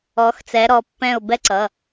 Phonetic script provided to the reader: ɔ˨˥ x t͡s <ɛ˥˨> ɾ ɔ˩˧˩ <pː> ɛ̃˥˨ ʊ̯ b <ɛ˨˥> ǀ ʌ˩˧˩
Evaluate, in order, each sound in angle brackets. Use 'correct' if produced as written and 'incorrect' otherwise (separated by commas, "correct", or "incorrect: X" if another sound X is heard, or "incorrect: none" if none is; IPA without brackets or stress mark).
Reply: incorrect: ɛ˨˥, correct, incorrect: ɛ˦